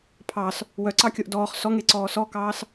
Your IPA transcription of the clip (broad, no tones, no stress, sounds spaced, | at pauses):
pʰ ɑ s | w œ ǀ ɑ kʲ o ʔ d ɔː χ s ɔ ŋ e ǀ ɔː s ɔ k ɑː s